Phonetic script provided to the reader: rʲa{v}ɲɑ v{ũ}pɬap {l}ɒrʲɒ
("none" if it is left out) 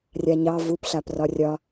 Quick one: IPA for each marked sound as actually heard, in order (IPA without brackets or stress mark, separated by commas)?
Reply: none, u, r